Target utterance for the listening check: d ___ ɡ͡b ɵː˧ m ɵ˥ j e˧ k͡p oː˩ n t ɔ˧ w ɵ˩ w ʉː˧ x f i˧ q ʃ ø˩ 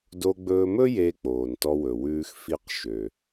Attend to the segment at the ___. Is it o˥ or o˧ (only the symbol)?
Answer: o˧